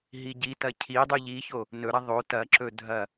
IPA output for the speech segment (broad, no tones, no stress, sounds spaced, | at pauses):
ɦ i ɟ i t ɐ cʰ i dˤ u ʎ i ç o | n ɵ ɾ ɐ ðˤ o t ɐ ǁ ɵ dʱ ɐ